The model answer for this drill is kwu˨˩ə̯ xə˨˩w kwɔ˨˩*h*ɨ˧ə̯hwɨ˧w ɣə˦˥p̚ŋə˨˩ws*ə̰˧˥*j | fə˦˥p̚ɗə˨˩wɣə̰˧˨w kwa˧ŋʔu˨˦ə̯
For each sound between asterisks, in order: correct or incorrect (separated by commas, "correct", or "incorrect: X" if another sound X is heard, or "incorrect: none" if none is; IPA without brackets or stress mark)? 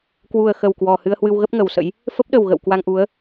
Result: correct, correct